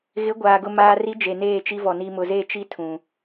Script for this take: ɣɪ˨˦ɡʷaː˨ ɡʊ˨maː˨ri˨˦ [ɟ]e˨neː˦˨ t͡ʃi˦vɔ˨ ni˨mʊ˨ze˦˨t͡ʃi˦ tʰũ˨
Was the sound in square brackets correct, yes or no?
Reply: no